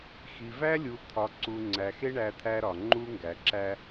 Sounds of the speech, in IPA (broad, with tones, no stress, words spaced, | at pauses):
xi˨væ˦lʲu˨ t̪ʰɒ˨ǀu˨ ŋ͡ǀæ˨xe˦ ɳæ˨ t̪ʰæ˦ɾɒ˨ ŋ͡ǃu˦ŋɡæ˨ǁæ˦